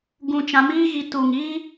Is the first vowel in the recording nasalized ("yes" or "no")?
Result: yes